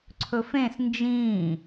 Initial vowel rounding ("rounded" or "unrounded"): rounded